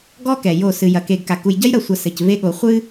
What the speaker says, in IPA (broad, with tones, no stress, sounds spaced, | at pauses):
ɡ ɔ˦ k ɛ˨ j o˦˨ s ɨ˨ j ɐ˨˦ k e˨ ɡ k a˨ k u˨ j ɟ ɐ˦ j ɾ ɐ˨ sʷ ɐ˨ s ɘ˨ c v e˦ ɠ o˨ χʷ ɨ˦